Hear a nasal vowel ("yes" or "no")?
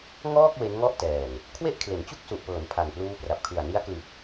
no